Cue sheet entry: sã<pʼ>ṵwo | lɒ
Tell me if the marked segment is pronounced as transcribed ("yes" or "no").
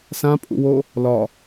yes